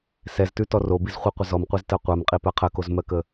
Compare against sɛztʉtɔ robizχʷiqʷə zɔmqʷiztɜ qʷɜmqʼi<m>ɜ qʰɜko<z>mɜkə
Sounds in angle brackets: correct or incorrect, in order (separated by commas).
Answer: incorrect, correct